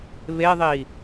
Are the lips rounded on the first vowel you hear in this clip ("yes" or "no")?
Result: no